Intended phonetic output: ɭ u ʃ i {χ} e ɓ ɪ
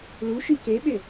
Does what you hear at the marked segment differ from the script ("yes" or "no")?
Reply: yes